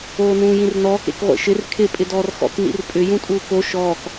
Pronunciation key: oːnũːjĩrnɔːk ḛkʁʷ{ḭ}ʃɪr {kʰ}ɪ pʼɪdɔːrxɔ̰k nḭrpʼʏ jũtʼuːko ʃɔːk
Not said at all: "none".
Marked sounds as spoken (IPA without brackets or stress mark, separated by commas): ḛ, kʰ